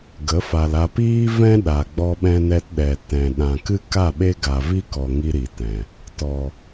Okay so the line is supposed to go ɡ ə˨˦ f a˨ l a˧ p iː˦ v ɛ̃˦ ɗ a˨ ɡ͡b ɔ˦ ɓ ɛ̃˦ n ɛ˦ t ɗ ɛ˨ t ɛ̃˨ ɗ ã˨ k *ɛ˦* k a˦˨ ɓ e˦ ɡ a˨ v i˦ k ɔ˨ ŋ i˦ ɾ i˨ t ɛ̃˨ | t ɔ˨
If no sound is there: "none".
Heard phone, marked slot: ɨ˦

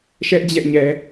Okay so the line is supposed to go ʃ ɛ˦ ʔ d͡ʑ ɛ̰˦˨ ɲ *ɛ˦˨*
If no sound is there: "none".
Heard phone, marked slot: ɛ˨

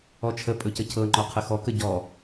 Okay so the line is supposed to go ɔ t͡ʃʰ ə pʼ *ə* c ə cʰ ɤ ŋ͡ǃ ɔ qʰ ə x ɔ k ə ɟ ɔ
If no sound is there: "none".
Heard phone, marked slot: ɵ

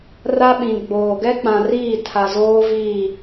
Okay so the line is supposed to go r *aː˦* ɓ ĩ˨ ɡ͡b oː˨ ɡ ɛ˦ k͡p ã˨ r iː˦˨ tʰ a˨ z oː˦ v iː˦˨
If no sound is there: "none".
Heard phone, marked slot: a˦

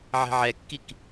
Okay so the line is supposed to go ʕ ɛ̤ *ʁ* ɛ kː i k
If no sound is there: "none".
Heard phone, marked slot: ʕ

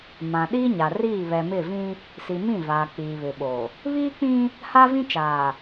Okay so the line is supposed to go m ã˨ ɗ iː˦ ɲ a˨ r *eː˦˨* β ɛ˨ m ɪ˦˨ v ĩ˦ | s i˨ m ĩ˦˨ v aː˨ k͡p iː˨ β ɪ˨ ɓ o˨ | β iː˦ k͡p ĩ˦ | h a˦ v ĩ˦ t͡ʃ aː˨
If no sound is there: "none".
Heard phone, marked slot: iː˦˨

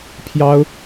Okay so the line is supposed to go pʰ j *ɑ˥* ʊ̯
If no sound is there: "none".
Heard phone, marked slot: ɑ˥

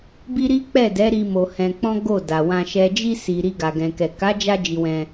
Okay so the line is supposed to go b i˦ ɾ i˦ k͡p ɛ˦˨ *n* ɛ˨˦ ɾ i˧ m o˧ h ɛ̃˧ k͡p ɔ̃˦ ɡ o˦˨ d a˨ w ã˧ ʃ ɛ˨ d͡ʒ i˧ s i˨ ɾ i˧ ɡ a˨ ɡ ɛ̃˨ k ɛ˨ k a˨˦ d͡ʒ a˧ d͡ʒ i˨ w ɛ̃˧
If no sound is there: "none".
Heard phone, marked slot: d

